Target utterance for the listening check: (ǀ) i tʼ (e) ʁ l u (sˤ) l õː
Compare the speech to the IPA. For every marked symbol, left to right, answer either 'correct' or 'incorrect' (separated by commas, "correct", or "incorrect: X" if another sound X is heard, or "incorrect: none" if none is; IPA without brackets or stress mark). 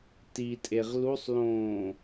incorrect: t, correct, correct